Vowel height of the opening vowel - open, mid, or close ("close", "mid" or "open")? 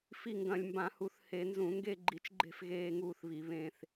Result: close